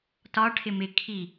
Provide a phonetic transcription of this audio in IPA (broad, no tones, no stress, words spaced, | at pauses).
tɒ ʈʰɪmɪ kʰi